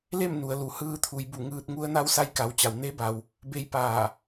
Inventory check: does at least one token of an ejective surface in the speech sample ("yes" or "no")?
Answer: no